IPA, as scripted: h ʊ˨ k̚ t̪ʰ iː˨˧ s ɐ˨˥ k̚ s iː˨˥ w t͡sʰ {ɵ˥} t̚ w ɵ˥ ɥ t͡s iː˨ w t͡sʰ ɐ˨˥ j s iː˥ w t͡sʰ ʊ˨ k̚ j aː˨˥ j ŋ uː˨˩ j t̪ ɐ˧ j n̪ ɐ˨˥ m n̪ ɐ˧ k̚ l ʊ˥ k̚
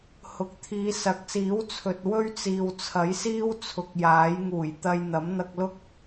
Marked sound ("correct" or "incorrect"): incorrect